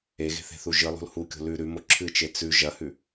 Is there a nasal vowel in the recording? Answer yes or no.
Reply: no